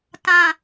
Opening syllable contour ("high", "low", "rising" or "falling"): low